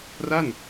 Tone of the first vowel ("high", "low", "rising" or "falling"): falling